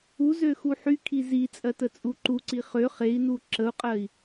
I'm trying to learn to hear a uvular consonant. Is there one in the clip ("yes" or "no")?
yes